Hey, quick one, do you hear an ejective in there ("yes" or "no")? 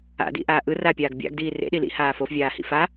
no